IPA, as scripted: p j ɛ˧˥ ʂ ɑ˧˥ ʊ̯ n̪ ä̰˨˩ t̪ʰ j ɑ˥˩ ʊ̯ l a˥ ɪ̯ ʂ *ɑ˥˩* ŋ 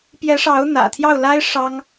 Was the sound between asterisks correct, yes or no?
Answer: no